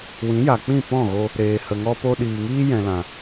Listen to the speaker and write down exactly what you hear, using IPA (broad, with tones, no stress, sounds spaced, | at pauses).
w ĩ˨˦ j a˨ k͡p ĩ˦˨ p ɔ̃˦˨ ɣ o˧ | ɾ eː˨ h ə˨ ŋ ɔ˧ p o˧ ɗ iː˨ ŋ iː˦ j ɛ̃˨ l ã˨